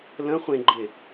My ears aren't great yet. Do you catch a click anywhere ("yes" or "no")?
yes